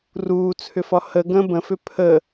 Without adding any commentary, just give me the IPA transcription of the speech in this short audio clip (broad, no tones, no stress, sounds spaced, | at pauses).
r uː t͡sʰ ʏ f ɒ h ə ɡ ə̃ b ə̃ f ʏ pʰ ə